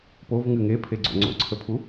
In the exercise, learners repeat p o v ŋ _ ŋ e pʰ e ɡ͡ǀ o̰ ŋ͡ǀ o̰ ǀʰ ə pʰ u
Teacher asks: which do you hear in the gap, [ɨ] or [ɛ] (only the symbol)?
ɨ